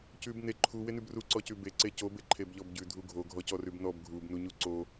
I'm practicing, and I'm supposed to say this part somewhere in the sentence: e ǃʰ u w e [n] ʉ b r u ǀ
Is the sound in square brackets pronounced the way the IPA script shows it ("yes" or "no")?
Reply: yes